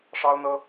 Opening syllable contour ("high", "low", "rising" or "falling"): high